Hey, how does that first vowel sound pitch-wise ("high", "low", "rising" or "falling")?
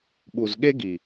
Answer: low